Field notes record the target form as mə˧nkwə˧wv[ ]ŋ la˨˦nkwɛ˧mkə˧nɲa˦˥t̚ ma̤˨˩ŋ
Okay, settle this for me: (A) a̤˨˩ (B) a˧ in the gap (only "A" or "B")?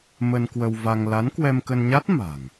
B